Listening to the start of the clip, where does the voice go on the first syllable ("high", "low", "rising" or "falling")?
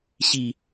low